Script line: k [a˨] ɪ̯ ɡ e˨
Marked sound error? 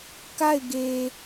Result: yes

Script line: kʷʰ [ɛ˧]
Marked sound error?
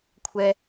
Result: no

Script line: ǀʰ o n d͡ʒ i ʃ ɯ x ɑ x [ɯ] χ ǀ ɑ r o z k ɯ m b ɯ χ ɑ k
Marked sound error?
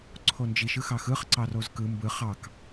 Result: no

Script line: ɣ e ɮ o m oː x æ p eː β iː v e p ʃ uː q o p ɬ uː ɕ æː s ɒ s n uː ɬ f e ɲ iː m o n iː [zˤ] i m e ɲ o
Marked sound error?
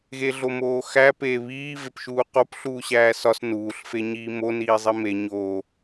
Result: no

